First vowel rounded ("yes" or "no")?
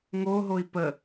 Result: yes